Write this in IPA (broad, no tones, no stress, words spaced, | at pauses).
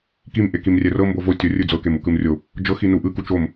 kim ʔekimrʲɛrɤ mbovo tʲorʲɯ d͡zɤkemu kɯmrʲo | d͡ʒɤxi nuʔɯku t͡ʃom